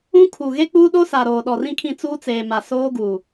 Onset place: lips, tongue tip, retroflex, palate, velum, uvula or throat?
velum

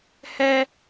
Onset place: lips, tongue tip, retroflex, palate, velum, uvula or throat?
throat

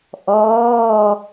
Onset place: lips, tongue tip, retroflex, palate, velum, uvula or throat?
throat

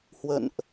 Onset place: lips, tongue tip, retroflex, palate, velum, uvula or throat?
throat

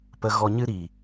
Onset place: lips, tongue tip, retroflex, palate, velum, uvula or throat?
lips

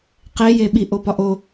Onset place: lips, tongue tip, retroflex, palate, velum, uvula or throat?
uvula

